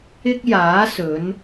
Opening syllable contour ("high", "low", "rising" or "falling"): high